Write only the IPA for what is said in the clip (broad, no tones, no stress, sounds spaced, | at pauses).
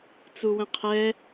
t͡s u w ə̃ qʰ ɛ